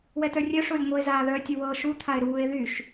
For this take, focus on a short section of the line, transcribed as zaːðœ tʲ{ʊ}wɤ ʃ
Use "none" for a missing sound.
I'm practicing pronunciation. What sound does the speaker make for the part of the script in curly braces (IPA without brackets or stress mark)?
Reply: ʊ